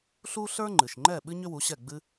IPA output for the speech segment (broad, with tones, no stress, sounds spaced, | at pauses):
ɬ u˥ ɬ ə˞˥ ŋ͡ǃ ɨ˩ ʃ ŋ͡ǃ ɛ˥˩ ɓ ɨ˥ ɲ ʏ˥ w u˩˥ ɕ ɛ˥˩ ɡ͡b ɨ˥